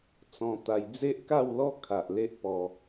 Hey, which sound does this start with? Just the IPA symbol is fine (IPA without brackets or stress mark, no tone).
t͡s